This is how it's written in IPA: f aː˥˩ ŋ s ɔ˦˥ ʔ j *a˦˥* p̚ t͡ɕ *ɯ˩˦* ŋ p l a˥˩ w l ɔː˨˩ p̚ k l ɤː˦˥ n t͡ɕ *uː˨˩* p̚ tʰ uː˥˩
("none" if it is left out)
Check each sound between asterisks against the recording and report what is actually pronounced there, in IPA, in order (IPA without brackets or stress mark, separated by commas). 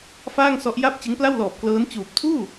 a˥˩, ɯ˦˥, uː˨˩